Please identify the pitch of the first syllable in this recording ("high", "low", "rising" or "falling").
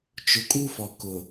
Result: low